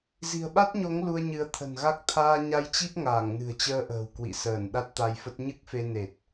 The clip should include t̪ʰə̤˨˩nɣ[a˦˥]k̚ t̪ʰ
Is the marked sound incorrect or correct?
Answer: correct